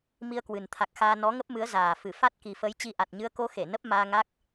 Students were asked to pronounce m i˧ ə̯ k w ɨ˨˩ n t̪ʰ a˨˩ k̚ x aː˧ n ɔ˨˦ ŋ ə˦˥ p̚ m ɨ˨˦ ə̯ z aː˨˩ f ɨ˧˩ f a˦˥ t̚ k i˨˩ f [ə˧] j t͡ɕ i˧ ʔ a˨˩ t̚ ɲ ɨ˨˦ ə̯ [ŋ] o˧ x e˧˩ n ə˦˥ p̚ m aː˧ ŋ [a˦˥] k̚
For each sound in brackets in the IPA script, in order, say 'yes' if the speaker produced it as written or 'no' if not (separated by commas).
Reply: no, no, yes